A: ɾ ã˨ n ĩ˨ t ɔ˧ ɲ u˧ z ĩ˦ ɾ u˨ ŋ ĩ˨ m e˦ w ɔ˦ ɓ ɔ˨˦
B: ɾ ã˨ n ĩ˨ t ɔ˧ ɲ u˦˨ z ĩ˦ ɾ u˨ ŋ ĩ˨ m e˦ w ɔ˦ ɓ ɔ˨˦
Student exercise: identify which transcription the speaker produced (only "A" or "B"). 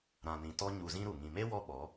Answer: A